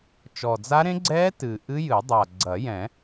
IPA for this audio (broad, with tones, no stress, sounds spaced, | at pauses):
t͡ʃ ɔ˨˩ d͡z a˦˥ ɾ ẽ˦˥ ɡ͡ǀ ɛː˦˥ t ɨ˨˩ ʔ ɨ˦˥ j ɨ˨˩˦ dˤ a˨˩ ɡ͡ǀ ɐ˨˩˦ j ɛ̃˨˩˦